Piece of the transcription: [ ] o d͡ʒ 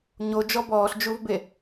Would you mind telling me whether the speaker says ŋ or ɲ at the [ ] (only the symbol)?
ɲ